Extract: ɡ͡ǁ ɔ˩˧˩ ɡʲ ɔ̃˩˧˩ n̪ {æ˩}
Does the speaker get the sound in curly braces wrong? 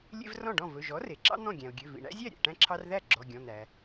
no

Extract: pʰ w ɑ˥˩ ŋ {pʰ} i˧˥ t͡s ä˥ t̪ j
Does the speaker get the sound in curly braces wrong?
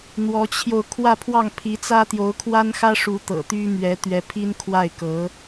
no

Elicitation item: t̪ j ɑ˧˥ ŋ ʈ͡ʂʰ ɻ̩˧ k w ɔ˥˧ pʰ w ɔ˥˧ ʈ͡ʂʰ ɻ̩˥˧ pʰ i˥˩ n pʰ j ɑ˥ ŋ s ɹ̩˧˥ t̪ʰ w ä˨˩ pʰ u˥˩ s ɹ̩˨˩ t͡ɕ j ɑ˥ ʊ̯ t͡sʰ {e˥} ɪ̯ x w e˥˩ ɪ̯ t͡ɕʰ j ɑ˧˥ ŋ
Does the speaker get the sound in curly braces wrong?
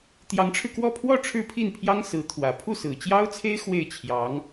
no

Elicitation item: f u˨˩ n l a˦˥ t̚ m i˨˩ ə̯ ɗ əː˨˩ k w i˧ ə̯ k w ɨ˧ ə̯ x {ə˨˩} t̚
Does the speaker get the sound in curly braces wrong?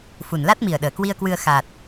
yes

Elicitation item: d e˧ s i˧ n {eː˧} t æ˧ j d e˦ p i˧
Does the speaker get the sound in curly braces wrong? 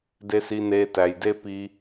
no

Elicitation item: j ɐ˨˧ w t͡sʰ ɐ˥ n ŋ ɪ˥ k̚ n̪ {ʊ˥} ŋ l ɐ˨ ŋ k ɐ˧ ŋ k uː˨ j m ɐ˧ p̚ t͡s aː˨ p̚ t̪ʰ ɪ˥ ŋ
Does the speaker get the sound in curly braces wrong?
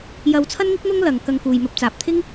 no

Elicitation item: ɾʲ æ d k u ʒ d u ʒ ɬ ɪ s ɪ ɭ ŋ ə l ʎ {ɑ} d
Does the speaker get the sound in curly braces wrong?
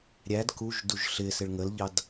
no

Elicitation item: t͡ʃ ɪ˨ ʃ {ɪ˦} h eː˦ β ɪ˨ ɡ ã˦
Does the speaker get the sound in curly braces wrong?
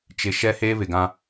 yes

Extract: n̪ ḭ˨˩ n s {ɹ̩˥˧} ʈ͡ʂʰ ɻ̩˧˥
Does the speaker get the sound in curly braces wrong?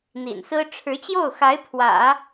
yes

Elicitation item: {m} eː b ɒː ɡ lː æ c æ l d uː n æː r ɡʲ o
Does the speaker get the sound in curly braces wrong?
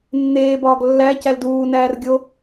yes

